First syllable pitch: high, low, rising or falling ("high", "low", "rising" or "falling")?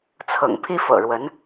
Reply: low